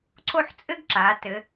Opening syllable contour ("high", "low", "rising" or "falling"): falling